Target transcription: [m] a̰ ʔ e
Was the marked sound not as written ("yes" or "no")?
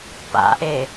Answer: yes